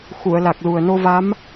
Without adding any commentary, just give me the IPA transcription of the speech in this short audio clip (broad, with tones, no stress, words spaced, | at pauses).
xu˨˩˨ə̯la˨˩k̚lu˨˩ə̯ no˧va˧˥m